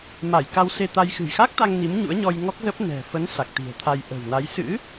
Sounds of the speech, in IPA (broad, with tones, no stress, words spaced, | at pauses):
ma˧˩jka˧wse˧t̪a˧j xɨ̤˨˩jxa˦˥k̚t̪a˧ŋ ni˨˦mɲṵ˧˥ə̯ɲɔ˧j ŋɔ˦˥k̚zə˦˥p̚ nɛ̤˨˩ fə˨˦n sa˨˩k̚t̪i̤˨˩ə̯t̪ʰa˧j ʔə̤˨˩wna˨˦j sɨ̰˧˥